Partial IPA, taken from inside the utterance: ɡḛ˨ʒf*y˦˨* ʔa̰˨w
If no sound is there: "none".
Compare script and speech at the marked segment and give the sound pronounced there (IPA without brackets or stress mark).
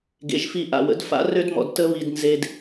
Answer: i˦˨